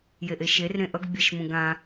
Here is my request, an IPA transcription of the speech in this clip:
j e ʔ e ʃ e r ɾ ẽ ʔ ʌ ɡ bʲ ɛ ʃ m ũ ɡ ã

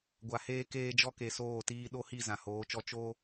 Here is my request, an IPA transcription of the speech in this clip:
ɡʷ a˨ h eː˦ k eː˦ d͡ʒ ɔ˦ k e˨ s oː˦˨ t iː˦ ɗ o˦ h i˦˨ z ã˨ h oː˨˦ t͡ʃ ɔ˦ t͡ʃ o˦

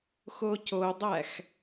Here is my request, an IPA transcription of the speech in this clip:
x o c o dˤ æ x

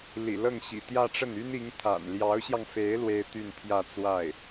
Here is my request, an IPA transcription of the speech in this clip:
l ḭ˨˩ l ɤ˥˩ ŋ ɕ ḭ˨˩ t̪ j ä˥˧ ʈ͡ʂ ə˥˩ n y˥ n i˧˥ ŋ t̪ʰ a̰˨˩ n l j ɑ˧˥ ʊ̯ ɕ j ɑ˧ ŋ f e˧˥ ɪ̯ l w e˥ ɪ̯ t̪ y˥˧ n t̪ʰ j ä˥˧ t͡s w a˥˩ ɪ̯

